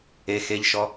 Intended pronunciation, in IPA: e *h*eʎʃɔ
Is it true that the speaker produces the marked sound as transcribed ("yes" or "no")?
no